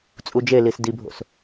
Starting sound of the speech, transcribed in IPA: t͡sʼ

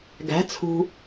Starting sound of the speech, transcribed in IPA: ɡ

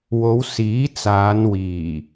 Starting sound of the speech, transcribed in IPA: w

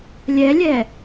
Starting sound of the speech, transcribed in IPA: lʲ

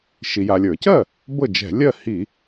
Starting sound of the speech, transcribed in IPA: ʃ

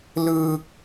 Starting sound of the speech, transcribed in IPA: l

